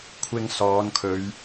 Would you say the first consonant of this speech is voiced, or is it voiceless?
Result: voiceless